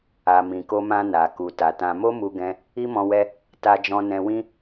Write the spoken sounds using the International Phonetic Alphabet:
a˨ m ĩ˨ k o˧ m ã˧ n a˨ k u˨ t a˨ t ã˧ m o˦ m u˧ ɡ ɛ̃˧ | i˦ m ɔ̃˧ w ɛ˧ | t a˧ d͡ʒ ɔ̃˧ n ɛ̃˧ w ĩ˦

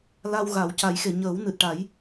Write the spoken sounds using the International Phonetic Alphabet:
l a˧ w ɣ a˨˩˦ w c a˨˩˦ j x e˨˩˨ ɲ əː˨˩˦ w n ɨ˨˩ t̚ ʈ a˨˩˦ j

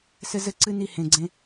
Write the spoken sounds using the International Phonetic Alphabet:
s ɘ˦ z ɘ˦ ǀ ɨ˦ n i˦˨ h ẽ˨ ɡ͡ǀ ẽ˦

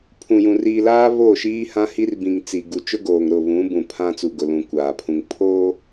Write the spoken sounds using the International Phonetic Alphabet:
pʰ ũ˨ j ũ˨ r iː˨ l aː˦ β oː˦˨ ʃ iː˦ h ã˦ h i˦ r b ĩ˨ ŋ t͡s i˨ ɡ u˨ t͡ʃ ʊ˦ ɡ oː˨ ŋ ɾ ʊ˦˨ β ũ˨˦ b ũ˨ pʰ ã˦ t͡s u˨ ɡ ʊ˨ l ũ˨ kʷ aː˨ pʰ ũ˨ ŋ pʰ oː˦

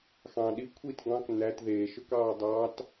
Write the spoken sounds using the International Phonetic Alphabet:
x ɑ̃ ɗ i kʷʰ i t ɡ ɑ̃ k n æ t ð eː ʃ ø k ɑː dˤ ɑ t

